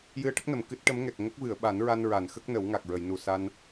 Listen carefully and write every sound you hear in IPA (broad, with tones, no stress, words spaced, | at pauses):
jɨ˧ə̯ʈə˦˥k̚nə˨˩˨m kɨ˦˥t̚ʈə˧˥m ŋɛ˨˩k̚ ŋə˦˥k̚vɨ˨˩˨ə̯ɓa˨˩˦nɹa˧n ɹa˨˩˨n xə˦˥k̚nə˨˩˦wŋa˨˩k̚ ɹə˨˩˨jnu˨˩ sa˧n